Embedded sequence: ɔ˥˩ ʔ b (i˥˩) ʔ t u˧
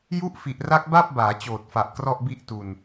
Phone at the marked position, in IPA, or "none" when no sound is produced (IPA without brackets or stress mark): i˥˩